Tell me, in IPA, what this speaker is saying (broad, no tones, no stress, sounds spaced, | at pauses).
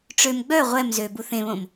ʈ͡ʂ ø m ɡ͡b œ ʁʷ ɛ m z ø b u θ ẽ β õ m